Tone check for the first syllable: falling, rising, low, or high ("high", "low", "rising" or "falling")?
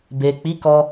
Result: low